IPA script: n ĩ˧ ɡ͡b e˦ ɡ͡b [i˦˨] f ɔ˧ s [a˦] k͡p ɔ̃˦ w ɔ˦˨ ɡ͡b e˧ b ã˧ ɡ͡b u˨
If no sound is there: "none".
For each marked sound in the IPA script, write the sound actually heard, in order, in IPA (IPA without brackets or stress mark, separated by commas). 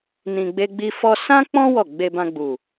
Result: i˦, ã˦